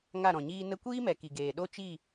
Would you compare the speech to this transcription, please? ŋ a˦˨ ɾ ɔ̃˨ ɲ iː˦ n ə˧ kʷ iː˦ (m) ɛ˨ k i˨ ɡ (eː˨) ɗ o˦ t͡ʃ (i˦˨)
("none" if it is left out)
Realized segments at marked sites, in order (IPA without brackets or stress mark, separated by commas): m, eː˨, i˦˨